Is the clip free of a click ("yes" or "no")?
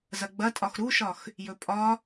yes